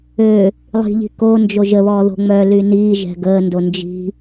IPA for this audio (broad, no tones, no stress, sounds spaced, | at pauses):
ø | lˠ i̤ ʎ i̤ k o n d͡ʒ o ʒ ə β ɔː ð o̤ ŋ͡m œ l y n iː ʒ ɛ̤ ɡ əː n d o n d͡ʒ i̤